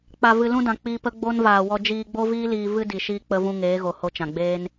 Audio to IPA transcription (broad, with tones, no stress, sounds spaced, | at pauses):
k͡p a˨ v ɨ˨ l ũ˧ d ã˨ k͡p iː˧ p ə˦ ɡ͡b o˦ n v aː˨ w ɔ˧ d͡ʒ iː˧ ɡ͡b o˦ v iː˦ l iː˧ v ɨ˦ d i˨ ʃ iː˧ k͡p ə˧ v ũ˧ ŋ eː˨˦ ɣ o˨ h o˧ t͡ʃ ã˨ ɡ͡b eː˦ n